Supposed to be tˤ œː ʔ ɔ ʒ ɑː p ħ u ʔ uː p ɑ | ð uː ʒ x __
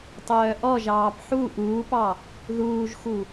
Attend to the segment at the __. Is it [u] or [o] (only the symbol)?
u